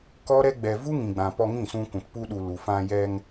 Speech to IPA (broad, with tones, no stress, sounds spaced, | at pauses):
k ɔ˦ ɾ ɛ˦ ɡ͡b ɛ˧ v u˦ ŋ ĩ˨ ɡ͡b ã˨ p ɔ˧ ŋ ĩ˦˨ s ũ˧ kʷ ũ˨ t p u˧ ɗ u˨ l u˨ f ã˧ j ɛ˧ ŋ